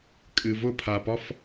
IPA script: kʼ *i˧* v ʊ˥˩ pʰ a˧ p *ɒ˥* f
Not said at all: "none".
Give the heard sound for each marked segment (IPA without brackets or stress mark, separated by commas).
ɨ˧, ɒ˥